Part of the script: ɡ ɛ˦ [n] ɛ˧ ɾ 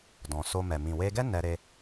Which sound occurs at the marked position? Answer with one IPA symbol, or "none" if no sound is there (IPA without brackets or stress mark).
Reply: n